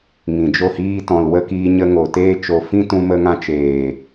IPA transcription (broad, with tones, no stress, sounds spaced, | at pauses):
ŋ ĩ˨ d͡ʒ o˦˨ h iː˦ t ɔ̃˨ l w ə˧ k iː˧ ɲ ə˧ ŋ o˨ t eː˧ t͡ʃ o˨ f ĩ˦ t ũ˧ m ə˧ ŋ ã˧ t͡ʃ eː˨